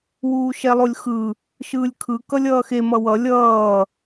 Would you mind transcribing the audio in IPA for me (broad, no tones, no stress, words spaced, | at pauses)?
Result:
wuːʃɛlˠolʲxɯ | ʃɯːlʲkʰɯ kʌlʲʌːxe mʌwʌ lʲʌː